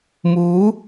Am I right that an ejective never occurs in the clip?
yes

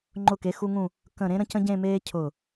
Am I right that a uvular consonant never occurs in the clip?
yes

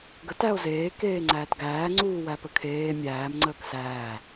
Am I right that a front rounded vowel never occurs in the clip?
yes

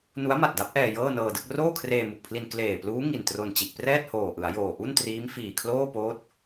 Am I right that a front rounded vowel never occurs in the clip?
yes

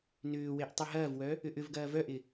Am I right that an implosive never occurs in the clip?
yes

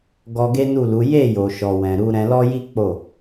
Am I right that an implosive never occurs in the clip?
yes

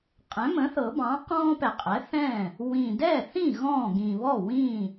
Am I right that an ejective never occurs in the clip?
no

